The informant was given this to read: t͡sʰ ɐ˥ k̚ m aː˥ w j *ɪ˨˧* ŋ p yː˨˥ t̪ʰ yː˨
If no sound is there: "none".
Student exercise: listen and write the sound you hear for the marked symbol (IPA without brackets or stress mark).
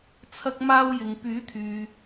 ɪ˨˧